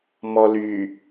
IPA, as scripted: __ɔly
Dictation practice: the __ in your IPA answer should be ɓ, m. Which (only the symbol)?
m